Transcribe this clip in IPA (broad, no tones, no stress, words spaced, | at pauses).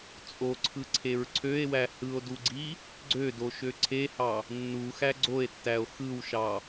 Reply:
t͡sʼoǀʰɯǀʰeɹ ǀʰøe̯wæ hɯo̯duɡ͡ǀi | ɡ͡ǀødoʃø ǀʰehɑ | nːuxæ ɡ͡ǀoe̯tːæo̯ xɯwʃɑ